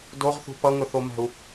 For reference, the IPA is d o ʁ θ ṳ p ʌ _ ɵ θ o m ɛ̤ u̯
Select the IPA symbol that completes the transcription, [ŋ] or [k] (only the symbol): ŋ